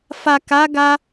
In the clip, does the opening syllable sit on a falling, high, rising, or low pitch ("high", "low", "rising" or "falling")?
low